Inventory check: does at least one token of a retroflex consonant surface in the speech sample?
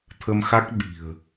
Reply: no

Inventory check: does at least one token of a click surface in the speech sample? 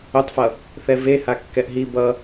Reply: no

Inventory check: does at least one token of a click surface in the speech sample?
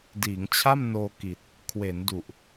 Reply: no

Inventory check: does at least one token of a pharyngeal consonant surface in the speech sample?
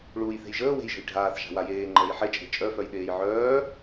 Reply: yes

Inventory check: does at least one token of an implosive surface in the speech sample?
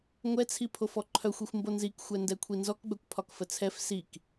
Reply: no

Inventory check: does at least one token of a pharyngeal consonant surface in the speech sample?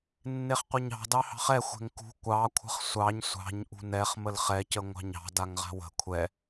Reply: no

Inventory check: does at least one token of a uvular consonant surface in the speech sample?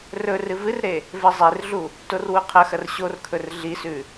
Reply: yes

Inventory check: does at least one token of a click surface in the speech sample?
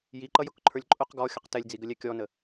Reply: yes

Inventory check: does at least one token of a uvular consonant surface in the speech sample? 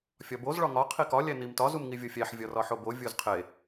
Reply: yes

